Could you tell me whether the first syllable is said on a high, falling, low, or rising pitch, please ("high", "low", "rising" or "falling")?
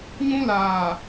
high